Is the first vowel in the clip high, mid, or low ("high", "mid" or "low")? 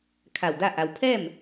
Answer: low